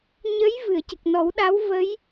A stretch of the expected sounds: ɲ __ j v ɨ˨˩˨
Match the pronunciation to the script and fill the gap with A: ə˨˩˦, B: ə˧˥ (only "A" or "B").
B